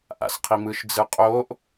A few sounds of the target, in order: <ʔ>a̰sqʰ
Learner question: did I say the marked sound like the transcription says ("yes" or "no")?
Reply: yes